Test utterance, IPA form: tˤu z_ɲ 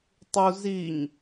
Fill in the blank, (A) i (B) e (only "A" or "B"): A